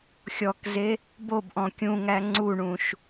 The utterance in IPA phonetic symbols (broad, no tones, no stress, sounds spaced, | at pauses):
xʲ ɔ k z e | b o b ʔ ɔ̃ kʲ ũ ŋ æ ŋ͡ǀ u ɳ ũ ʃ